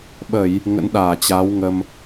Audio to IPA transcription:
ɓ ə˧˩˨ j | ŋ ə̰˧˥ n ɗ aː˧˩ t͡ɕ a˨˦ w ŋ ə˧ m

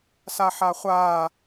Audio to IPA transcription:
s a ħ a χʷ aː

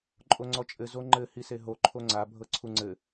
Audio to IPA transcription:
ǃʼ o ŋ͡ǀ ɔ t͡ʃʼ ɘ z o ŋ͡ǃ ɘ h i s e ɦ o ǃʰ o ŋ͡ǀ a bʱ ɤ ǀʰ u ŋ͡ǀ ɘ

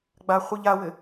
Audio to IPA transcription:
ɡ͡b a χʷ i ʎ a w ɘ

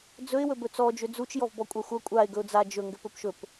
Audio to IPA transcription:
d͡z ɵ ɪ̯ w ɵ b ɵ t͡s ɔ d͡ʒ ʏ d͡z u t͡ʃ j ɔ v b ɔ kʷʼ a xʷ ɐ kʷʼ a ɪ̯ ɡ ɵ ʊ̯ d͡z a d͡ʒ ɵ ŋ ɡ ʏ p ɵ p ʃ ɵ p

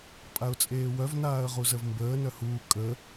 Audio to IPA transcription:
pʼ a ʊ̯ t͡sʼ eː w œ v n aː ə̯ ʁ u z ə v m b əː n œ h uː kʼ ə

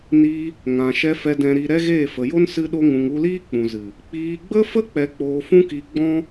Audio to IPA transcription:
n iː˧ | ŋ ã˨ ʃ ɛ˧ f ɛ˨ d ɛ̃˨ ɾ i˨ ɾ ɛ˦ ɣ eː˦˨ f ə˨ j o˦ n s ɨ˦ ɗ o˦ ŋ ũ˧ ŋ u˦ l iː˦ k͡p ũ˨ z ɨ˨ | k͡p iː˧ ɡ͡b ə˦ f ə˦ k͡p ɛ˧ k͡p oː˧ f ũ˦ k i˧ ɡ͡b ɔ̃˦

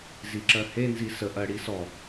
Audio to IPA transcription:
z i ǁ ɜ h e n z i s ə ʔ ɜ ɽ i s ɔ

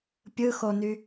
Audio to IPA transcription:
pʲ ɯ x o n y

